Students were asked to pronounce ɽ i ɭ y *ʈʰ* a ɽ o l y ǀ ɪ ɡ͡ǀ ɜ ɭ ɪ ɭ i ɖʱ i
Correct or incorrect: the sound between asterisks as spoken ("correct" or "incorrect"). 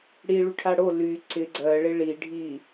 correct